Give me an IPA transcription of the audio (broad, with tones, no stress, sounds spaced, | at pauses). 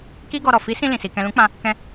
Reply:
k i˦ ɡ ɔ˧ ɾ ɔ˨ f i˨˦ s ĩ˧ l ĩ˨ s i˨ k ɛ̃˨ l ũ˨˦ k͡p ã˧ | k ɛ̃˧